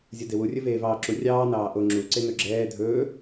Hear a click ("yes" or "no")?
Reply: yes